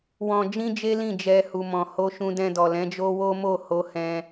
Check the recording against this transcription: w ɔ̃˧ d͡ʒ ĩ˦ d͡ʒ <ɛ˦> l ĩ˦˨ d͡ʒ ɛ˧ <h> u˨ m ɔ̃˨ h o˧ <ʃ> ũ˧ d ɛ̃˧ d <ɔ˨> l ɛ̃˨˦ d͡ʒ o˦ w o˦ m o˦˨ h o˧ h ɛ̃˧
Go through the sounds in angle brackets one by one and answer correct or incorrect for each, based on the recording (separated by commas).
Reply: incorrect, correct, correct, correct